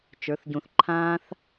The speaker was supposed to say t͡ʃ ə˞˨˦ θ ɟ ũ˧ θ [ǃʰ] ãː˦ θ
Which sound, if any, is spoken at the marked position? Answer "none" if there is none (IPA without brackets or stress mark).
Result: ǃʰ